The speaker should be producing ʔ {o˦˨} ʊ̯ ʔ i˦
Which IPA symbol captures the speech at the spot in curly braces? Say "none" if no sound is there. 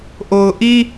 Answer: o˨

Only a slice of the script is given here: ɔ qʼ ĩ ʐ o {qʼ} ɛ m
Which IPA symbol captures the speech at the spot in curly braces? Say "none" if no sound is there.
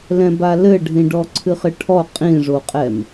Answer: qʼ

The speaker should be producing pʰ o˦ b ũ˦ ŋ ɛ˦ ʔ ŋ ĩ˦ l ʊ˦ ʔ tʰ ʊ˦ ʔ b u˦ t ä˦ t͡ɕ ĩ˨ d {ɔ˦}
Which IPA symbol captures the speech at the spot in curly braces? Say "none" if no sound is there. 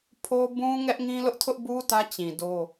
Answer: o˦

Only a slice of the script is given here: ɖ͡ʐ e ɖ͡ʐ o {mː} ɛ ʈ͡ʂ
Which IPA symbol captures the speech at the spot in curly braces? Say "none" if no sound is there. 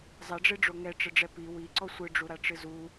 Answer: ŋ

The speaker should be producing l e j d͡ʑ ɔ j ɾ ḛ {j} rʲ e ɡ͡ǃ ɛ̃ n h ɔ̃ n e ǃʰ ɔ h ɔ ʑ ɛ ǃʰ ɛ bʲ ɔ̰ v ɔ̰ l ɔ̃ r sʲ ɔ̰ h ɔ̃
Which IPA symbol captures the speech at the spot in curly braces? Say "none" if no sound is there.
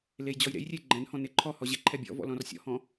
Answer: j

